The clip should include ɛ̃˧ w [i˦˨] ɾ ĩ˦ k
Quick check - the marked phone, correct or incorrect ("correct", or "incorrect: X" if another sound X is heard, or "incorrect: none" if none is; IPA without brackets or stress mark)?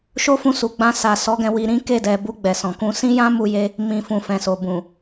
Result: incorrect: i˧